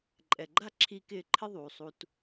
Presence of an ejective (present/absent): present